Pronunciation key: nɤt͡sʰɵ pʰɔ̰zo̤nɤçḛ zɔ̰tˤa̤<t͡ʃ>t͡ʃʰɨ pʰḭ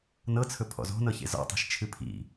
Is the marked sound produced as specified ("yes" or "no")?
no